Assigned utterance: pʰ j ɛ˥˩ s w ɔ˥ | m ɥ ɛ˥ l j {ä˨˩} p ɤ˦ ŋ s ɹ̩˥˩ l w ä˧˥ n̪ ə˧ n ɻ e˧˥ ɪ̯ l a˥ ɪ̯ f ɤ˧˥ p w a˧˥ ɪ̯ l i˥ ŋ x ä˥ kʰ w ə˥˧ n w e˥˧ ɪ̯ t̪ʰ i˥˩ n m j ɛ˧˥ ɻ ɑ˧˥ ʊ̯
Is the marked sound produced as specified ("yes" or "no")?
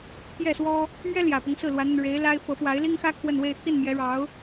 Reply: yes